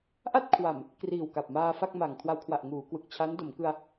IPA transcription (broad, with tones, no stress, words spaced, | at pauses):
ʔa˥˩t̚kʰwa˨˩m | kriː˨˩wka˨˩p̚maː˧ fa˥˩k̚ma˨˩ŋ kʰwa˧wkʰwa˨˩ʔ ŋuː˩˦kwɯ˨˩k̚ t͡ɕʰa˦˥ndo˩˦mkɯ˧a̯